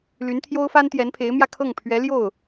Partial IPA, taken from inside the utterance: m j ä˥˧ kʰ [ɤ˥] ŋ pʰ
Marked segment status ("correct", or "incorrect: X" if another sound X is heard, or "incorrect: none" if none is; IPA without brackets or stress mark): incorrect: ɤ˥˩